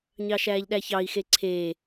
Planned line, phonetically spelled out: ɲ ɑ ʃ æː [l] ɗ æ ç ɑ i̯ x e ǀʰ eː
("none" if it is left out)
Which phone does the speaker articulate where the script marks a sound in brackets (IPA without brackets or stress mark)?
ʎ